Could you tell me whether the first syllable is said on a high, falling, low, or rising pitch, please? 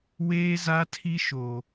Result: high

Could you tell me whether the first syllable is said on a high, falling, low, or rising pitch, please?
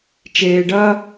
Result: low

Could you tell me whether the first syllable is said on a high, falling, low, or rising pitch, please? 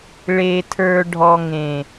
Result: low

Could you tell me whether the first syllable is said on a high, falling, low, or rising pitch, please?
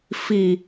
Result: low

